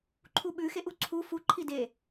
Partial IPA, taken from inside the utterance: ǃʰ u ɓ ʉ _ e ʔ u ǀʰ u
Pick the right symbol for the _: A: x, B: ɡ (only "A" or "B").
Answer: A